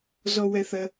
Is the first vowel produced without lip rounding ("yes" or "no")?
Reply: no